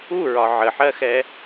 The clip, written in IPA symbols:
u ɹ ɒ ʕ ə ħ ɜ x ɛ

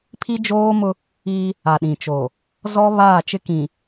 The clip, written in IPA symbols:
pʰ i˦ d͡ʒ oː˦ m ʊ˦ | i˦ | a˨ ɗ ĩ˨ t͡ʃ o˨ | z ɔ˦ β aː˦˨ t͡ʃ ɪ˦ k ĩ˨

